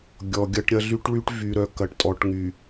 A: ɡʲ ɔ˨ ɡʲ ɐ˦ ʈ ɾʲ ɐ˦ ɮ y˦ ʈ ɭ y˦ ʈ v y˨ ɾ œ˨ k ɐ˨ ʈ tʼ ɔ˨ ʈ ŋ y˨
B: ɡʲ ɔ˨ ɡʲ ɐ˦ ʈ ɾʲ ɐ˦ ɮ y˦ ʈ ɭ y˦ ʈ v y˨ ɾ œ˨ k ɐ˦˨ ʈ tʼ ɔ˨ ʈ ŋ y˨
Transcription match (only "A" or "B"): A